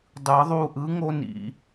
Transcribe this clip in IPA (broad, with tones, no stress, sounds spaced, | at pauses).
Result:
dˤ ɯ˨˩˦ ðˤ u˦˨ ʔ ɯ˨˥ ŋ o˦ n ḭ˨˩˦